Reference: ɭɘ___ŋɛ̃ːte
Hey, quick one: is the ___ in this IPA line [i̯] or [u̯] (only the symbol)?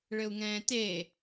u̯